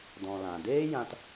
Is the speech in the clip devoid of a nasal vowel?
no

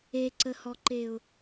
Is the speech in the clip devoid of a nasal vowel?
yes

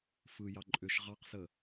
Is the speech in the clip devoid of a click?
no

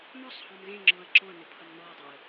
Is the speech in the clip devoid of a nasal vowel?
no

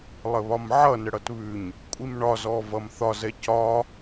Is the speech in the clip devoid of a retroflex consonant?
no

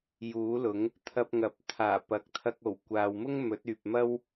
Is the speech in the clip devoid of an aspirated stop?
no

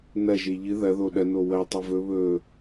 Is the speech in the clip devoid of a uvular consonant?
yes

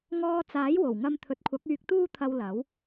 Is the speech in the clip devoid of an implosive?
yes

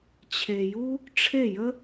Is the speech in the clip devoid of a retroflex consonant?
no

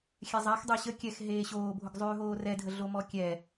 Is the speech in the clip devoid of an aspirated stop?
yes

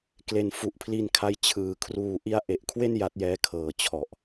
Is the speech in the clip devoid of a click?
yes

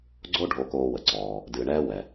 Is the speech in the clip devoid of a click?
no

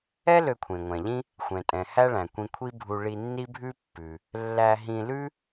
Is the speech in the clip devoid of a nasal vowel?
no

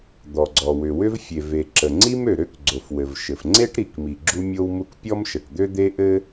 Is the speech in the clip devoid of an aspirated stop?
yes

